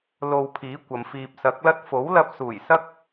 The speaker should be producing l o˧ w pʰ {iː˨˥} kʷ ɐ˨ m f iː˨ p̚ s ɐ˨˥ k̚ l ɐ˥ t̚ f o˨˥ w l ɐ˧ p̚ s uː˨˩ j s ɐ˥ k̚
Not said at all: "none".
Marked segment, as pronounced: iː˨˥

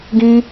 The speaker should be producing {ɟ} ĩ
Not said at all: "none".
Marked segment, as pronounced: ɡ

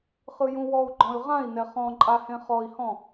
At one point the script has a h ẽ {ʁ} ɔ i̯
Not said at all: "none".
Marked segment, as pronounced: χ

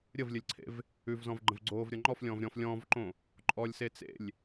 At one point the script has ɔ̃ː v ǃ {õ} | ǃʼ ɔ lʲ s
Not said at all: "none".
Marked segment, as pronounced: õ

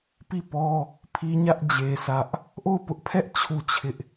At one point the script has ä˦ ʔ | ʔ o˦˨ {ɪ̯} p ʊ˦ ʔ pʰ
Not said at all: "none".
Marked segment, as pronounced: ʊ̯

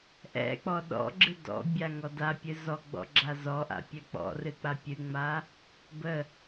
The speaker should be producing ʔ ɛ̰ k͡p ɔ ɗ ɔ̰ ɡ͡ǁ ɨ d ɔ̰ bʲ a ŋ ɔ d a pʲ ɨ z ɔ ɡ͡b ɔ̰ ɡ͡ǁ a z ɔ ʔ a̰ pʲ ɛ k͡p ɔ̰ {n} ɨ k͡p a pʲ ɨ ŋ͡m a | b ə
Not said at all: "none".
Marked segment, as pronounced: r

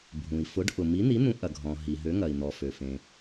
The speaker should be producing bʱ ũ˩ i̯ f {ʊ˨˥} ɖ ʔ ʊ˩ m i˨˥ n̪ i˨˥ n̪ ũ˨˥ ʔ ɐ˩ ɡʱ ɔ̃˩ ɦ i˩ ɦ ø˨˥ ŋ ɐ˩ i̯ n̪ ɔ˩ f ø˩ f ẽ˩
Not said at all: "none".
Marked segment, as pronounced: ʊ˨˥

